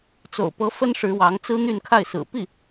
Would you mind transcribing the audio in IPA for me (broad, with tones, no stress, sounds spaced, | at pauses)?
t͡s o̰˨˩ ʊ̯ p ɤ˧˥ f ə˥ n ʂ ɻ̩˧˥ w ɑ˧˥ ŋ t͡s ɹ̩˥ n̪ y˥˧ n kʰ a˥˩ ɪ̯ s ɹ̩˨˩ p i˥˩